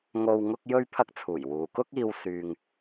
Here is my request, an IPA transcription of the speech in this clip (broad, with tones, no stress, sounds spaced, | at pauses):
ŋ o˧ w ŋ ʊ˥ k̚ j ɵ˥ ɥ pʰ ɐ˥ k̚ t͡sʰ uː˨˩ j w uː˨ k ʊ˥ k̚ iː˧ w s yː˧ ŋ